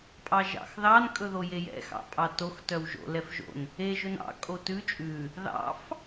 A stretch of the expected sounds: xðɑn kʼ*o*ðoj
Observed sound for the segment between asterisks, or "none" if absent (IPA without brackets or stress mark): ɵ